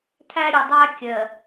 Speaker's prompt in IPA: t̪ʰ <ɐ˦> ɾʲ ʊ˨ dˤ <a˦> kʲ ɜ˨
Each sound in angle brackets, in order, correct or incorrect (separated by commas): incorrect, incorrect